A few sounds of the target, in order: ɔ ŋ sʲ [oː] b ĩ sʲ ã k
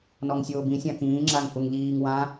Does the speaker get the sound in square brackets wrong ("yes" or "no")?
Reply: no